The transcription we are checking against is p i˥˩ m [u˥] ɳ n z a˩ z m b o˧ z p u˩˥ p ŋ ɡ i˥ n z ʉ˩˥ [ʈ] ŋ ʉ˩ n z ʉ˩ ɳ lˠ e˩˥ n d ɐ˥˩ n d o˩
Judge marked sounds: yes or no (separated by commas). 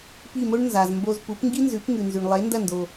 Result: no, no